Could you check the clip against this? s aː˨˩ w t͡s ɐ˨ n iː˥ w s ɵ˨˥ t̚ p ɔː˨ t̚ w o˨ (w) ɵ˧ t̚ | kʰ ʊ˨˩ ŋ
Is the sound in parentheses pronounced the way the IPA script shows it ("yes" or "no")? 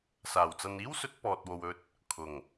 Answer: yes